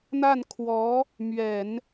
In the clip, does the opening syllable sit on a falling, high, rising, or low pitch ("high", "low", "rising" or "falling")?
falling